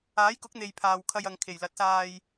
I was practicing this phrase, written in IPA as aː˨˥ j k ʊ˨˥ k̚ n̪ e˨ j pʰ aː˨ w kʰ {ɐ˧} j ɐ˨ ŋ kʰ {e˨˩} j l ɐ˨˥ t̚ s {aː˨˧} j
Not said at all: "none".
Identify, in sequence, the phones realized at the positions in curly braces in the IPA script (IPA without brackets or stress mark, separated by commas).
ɐ˧, e˨˩, aː˧